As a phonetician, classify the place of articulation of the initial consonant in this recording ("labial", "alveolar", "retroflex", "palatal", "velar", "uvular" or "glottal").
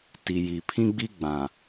alveolar